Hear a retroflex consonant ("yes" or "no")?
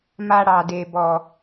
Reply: yes